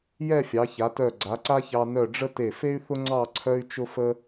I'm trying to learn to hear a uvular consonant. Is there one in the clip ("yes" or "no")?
no